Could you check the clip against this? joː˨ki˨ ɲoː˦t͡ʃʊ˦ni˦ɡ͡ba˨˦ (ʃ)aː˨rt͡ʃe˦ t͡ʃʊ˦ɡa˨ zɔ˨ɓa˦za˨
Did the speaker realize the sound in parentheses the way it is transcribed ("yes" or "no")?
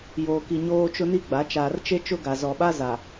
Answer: no